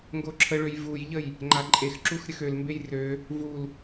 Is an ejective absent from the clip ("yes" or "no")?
no